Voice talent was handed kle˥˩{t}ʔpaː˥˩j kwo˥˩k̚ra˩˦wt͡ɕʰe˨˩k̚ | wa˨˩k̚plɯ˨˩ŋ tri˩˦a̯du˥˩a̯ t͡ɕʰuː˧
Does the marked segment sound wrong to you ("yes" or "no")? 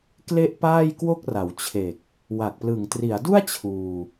yes